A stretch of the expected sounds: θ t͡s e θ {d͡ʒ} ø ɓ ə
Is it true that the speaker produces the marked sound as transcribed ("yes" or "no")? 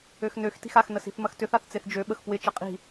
yes